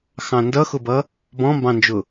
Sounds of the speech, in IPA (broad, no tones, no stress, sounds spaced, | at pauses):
x ɑ̃ n d ʌ x ʊ b ʌ | b ɔ̃ m b ɑ̃ n d͡ʒ ʊ